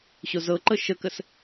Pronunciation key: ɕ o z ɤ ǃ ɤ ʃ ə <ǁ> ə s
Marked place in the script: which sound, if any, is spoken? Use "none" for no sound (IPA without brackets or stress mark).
k